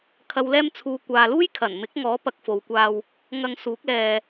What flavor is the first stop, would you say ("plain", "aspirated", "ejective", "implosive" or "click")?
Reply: aspirated